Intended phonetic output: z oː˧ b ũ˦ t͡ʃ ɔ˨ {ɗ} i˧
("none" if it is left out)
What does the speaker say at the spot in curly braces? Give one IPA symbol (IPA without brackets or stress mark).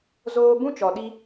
ɗ